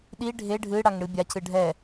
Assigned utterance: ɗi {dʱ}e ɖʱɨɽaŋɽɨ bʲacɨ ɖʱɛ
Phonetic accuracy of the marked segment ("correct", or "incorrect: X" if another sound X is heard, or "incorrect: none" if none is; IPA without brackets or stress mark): incorrect: ɖʱ